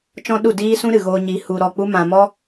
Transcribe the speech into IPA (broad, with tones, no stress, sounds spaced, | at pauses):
t͡ʃ ɔ̃˦ ɗ u˦˨ d iː˦ s ũ˦ ɾ ɨ˨ ɣ oː˧ ɲ i˨˦ h u˧ ɾ ɔ˦˨ k͡p u˦ m ã˧ m ɔ˦